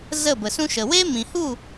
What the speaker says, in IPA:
z ə˦˨ b ə˨ s ũ˦ ʃ ə˨ w eː˦ m ĩ˨ h u˦˨

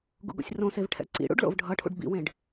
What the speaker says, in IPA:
ɡ ṵ ɡ o̰ sʲ r õ s e v ʈʰ ɛ̰ ǀ ḭ ɽ ṵ ɖ ɭ o̰ v ɖʱ ʌ ʈʰ ṵ ɖ b ḭ w ẽ ɖ

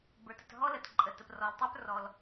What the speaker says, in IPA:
b ə˞˩ t ə˩ t ɦ ɔ˥ l ə˩ t ǃʼ ə˩ t ə˩ p r ɔ˩ l tˤ ə˞˥ p r ɔ˩ l

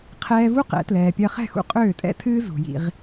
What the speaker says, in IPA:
qʰ ɛː˧ v u˦ q ɛ̰˨˦ t l ɛː˨ pʲ ɜ˧ χ ɛ̤˦˨ x ṵ˦ qʼ øː˦˨ tʼ ɛ̰˦ tʰ ɨː˦ z ṳ˨ j ḭ˧ ʁ

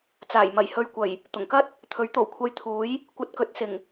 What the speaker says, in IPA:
t͡s aː˨˩ j m ɐ˨˩ j h ɵ˨ ɥ kʷ ɐ˨˩ j | t̪ ʊ˨˩ ŋ k ɐ˥ t̚ | t̪ʰ ɵ˨˥ ɥ t̪ o˨˩ w kʷʰ ɐ˧ j t̪ʰ uː˨˥ j | kʷ ɐ˧ t̚ k ɵ˨˥ t̚ s ɪ˨˩ ŋ

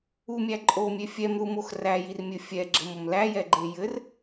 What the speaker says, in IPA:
u mʲ æ ǃʼ o mʲ e fʲ ɛ m ð u m o x r æ j i r mʲ ɘ fʲ ɛ ɡ͡ǁ ɘ m o m l æ j ɛ ɡ͡ǃ e j ɘ r

